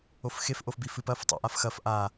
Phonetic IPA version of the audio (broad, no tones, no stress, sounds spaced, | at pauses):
o f x e f ʔ o f b i f ɨ p ɐ f tˤ ṵ ʔ a f x ɐ f ʔ a